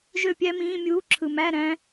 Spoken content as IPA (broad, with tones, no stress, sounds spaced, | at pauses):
ʒ ø˥˩ pʲ æ˦˥ m ĩː˧˥˧ mʲ uː˧˥˧ ǁʰ ɯ˨ m æ˧˥˧ ɾ æ̃˦˥